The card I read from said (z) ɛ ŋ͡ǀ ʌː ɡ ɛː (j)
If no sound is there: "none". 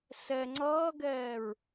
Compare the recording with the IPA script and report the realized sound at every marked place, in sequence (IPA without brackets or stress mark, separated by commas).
s, ɹ